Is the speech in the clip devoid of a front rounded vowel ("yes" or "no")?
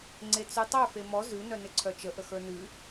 no